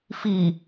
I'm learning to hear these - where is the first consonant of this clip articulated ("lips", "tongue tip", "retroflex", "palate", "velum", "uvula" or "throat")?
lips